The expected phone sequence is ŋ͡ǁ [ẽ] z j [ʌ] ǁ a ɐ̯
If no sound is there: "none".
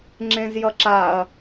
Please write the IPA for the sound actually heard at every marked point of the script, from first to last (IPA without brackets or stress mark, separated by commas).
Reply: ẽ, ʌ